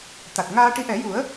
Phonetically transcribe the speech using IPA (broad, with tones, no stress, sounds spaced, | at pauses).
t̪ a˨˩ t̚ ŋ aː˧ ʈ i˧˥ ʔ ɛ˨˩˦ j u˨˩˦ ə̯